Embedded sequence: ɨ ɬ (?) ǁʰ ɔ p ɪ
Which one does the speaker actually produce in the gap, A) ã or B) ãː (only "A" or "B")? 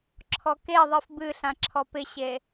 A